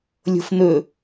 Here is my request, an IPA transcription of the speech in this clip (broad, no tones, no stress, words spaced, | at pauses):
lʲo̤fn̪ɵ